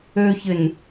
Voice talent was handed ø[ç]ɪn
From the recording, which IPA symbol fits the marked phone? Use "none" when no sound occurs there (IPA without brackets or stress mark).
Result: ç